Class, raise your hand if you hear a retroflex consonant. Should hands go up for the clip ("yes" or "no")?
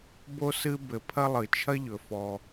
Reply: no